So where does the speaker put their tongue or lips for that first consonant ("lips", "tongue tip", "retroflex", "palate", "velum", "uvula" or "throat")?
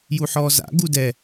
palate